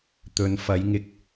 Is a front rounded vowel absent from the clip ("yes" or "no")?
yes